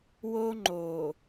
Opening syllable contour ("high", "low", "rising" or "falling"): high